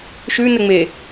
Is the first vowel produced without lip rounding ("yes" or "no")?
no